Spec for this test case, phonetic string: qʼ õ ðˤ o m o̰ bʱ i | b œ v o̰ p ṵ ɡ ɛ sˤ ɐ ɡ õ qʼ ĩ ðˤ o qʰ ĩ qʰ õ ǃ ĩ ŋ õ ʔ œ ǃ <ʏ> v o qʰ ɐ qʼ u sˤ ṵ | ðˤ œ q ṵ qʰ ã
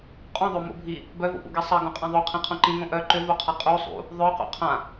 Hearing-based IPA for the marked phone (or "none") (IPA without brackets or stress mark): ʏ